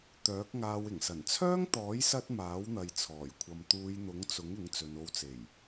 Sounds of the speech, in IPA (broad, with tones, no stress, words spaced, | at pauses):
t̪œː˨˥k̚ ŋaː˨wɪ˨˩ŋsɐ˨˩nt͡sʰœː˥ŋ t̪ɔː˨˥jsɐ˧t̚ maː˨˥wn̪ɐ˨jt͡sʰɔː˨˩jkʷʰɐ˨m t̪uː˨˧jn̪ʊ˨˥ŋt͡sʊ˨˥ŋ ɪ˨˥ŋt͡sɵ˨n o˨wt͡se˨˩j